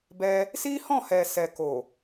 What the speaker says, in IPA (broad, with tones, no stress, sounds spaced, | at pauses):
b ɛ˧ | s i˦ h ɔ̃˦˨ h ɛ˨ s ɛ˨ k o˨